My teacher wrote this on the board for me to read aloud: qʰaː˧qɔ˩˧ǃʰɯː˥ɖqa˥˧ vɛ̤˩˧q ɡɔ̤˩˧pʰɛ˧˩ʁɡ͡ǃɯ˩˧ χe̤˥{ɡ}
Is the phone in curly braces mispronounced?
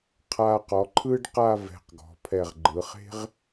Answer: yes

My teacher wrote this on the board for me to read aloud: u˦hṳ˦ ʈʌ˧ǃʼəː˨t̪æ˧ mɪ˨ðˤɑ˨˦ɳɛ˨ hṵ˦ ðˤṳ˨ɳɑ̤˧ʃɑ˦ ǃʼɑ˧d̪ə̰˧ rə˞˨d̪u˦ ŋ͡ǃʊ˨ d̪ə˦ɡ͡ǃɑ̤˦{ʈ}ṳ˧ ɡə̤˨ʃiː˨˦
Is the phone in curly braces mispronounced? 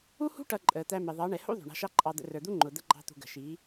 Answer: yes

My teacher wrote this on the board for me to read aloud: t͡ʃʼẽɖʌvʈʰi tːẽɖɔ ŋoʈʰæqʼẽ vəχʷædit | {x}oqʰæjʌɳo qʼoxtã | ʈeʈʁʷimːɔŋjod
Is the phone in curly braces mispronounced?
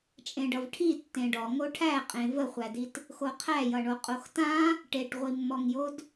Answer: no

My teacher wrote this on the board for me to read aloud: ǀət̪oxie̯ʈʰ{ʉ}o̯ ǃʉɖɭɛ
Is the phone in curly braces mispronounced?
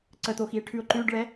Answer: no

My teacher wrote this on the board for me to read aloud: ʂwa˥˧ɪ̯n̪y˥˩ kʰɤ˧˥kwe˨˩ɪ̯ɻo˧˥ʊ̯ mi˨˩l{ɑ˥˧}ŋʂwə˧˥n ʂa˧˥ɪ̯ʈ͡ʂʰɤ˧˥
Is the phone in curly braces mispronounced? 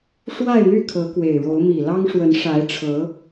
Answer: yes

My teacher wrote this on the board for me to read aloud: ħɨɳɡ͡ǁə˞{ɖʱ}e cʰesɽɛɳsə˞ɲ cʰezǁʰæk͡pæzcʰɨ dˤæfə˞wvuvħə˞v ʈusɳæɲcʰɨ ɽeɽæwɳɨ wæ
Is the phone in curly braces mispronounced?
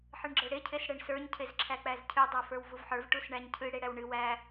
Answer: yes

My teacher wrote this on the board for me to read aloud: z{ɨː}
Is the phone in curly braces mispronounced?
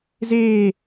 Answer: yes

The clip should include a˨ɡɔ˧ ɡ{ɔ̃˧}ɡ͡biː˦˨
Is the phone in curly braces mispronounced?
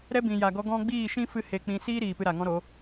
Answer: no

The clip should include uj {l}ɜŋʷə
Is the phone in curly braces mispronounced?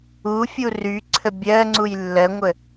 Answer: yes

